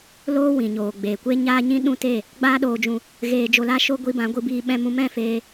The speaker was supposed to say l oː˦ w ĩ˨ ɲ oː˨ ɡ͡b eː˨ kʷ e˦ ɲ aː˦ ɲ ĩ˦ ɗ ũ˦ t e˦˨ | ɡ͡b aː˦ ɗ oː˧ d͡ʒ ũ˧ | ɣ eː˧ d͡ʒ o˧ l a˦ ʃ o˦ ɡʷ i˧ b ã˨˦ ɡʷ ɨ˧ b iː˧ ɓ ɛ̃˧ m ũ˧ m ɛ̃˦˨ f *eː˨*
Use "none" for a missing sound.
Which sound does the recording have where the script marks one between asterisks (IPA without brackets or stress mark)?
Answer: eː˧